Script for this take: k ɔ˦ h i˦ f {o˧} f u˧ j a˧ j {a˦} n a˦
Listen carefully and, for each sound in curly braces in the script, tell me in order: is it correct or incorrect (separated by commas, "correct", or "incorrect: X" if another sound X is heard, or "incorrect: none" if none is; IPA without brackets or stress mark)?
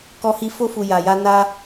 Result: incorrect: o˦, correct